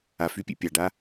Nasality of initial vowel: oral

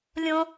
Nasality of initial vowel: nasal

